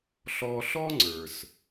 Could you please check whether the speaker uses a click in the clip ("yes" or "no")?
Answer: yes